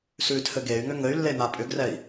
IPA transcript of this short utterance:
sʉtʰɘ ɡey̯ ŋʏŋɘy̯lːe n̪apʼʏɡrɛi̯

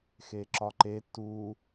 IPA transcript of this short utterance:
xeǁɒǃe tu

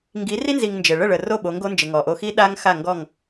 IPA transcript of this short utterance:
ŋɡi˨˦ri˦nzi˨ŋ nd͡ʒɘ˨ ɭə˦˨ɭə˨ro˦˨ ɓo˨˦ŋɡo˦nd͡ʒɘ˨ ŋɔ˨ʔo˦ xi˦ɗa˦ŋxa˦˨ ŋɡɔ˦˨ŋ

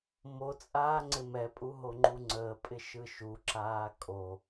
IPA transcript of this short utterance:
mot͡sʼaː ŋ͡ǀɪmɛpʼu ɦoŋ͡ǃuŋ͡ǀəːpʼɪ ʃɯʃuǁaː kʼo

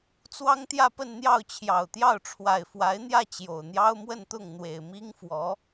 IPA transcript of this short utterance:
t͡swɑ˥ŋt̪jä˥˧pə˥˧nn̪jɑ˥˩ʊ̯ t͡ɕʰjɑ˨˩ʊ̯t̪jɑ˥˩ʊ̯ ʈ͡ʂʰwa˨˩ɪ̯fwa˧˥ɪ̯n̪jä˥˩ t͡ɕjo˨˩ʊ̯n̪jɑ˥ʊ̯mwə˥˧nt̪ʊ˥˩ŋ n̪we˨˩ɪ̯mi˥ŋfwɔ˧˥

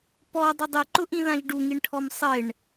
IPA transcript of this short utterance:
pɔ dˤɪdˤiǃʊʔĩ ðãʒɖuŋiɳʈʰɔm sˤɪɳ

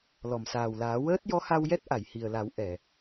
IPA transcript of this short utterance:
lɔ˨˩˨msaː˨˩wlaː˨˩˦ wəː˦˥t̚jɔ˧˥ha˧wjɛ˦˥t̚ ʔa˨˩˨jhi˨˩ə̯la˨˩˦w ʔɛ˨˩˨

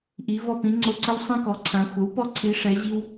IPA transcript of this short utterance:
ʔi˩˧ vɔ˧˩pĩ˩˧ ŋ͡ǀo˧˩ǀə˦w sˤɛ̃˦kɔ˩˥ǀʰã˩˧ xʷə˩˥wpɔ˦ ǀʰi˩˧ʂɛ˩˧ ʑi˦w

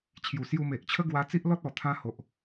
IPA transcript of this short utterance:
t͡ɕʰju˨˩ sju˧ me˨ʔt͡ɕʰə˦ɡwa˧ t͡si˦ʔlɔ˦t̚ ɔ˨˩t̪ʰã˧ ho˨ʔ

